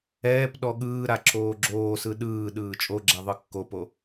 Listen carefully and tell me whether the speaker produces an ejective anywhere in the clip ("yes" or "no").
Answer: yes